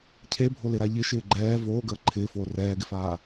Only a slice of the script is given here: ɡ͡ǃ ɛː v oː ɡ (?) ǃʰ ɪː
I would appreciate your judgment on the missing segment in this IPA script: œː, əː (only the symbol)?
əː